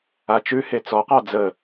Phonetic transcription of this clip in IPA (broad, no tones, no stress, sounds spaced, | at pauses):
a t͡ʃ ʉ h e t͡s ɔ q ɑ d͡z ə